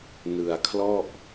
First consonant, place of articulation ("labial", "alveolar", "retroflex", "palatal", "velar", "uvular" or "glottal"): alveolar